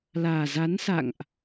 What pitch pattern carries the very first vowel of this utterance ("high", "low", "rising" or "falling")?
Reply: low